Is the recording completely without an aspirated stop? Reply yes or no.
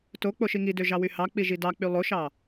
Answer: yes